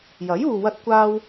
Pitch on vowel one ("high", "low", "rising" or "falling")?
rising